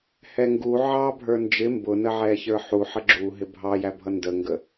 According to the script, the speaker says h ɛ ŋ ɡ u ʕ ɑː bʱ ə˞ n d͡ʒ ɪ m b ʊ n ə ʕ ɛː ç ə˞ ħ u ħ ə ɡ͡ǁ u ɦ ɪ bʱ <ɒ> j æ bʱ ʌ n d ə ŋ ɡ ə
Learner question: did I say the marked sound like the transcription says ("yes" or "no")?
no